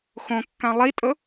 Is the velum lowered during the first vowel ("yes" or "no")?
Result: yes